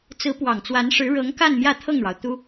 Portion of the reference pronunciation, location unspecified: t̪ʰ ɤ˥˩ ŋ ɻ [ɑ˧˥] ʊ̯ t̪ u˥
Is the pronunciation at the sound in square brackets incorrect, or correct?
incorrect